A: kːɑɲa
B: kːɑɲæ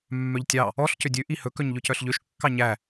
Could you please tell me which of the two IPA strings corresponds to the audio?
B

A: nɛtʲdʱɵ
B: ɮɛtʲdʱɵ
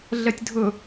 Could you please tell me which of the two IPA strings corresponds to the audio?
B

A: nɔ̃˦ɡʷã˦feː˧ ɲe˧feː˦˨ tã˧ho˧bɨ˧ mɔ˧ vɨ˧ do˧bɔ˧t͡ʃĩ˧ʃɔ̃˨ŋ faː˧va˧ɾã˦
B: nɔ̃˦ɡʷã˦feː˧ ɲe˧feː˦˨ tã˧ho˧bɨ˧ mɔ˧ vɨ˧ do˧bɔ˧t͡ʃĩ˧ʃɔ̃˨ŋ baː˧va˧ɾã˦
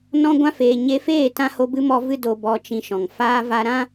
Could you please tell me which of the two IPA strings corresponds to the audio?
A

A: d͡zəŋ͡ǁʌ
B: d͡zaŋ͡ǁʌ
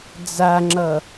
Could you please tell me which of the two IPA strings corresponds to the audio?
B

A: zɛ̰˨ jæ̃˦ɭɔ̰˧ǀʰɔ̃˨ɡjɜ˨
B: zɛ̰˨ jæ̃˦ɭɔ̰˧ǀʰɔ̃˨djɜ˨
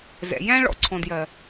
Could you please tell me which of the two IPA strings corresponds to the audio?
B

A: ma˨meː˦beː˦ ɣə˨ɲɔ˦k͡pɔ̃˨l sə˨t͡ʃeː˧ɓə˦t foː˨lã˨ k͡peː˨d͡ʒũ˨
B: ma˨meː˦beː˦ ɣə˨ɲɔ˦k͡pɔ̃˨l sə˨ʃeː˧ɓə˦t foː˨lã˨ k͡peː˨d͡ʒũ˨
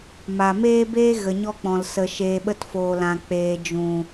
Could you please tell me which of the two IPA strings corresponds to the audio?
B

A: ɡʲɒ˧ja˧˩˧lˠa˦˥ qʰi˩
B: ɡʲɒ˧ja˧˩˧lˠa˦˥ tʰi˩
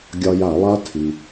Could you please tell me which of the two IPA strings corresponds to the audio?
B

